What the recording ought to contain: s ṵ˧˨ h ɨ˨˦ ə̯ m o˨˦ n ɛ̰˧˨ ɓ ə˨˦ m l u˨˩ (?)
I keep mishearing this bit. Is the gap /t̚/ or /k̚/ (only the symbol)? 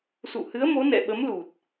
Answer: t̚